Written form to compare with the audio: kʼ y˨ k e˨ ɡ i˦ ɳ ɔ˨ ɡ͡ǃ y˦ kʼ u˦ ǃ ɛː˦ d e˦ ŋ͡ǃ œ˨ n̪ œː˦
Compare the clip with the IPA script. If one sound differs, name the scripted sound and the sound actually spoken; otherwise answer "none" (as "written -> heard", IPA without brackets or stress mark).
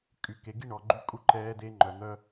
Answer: none